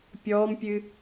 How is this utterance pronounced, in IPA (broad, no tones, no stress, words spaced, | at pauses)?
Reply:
pʲɔːmpʲɨ